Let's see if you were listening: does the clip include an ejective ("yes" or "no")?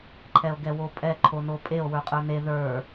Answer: yes